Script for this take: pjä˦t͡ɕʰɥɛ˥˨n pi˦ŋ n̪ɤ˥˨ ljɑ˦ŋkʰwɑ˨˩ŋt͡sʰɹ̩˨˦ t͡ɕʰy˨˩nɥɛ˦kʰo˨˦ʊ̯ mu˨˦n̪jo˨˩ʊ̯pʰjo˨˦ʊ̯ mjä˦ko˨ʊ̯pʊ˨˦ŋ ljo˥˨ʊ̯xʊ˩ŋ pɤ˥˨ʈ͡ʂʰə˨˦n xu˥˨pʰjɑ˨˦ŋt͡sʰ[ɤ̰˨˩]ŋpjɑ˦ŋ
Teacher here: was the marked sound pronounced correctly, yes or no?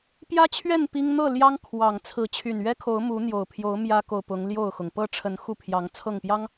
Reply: no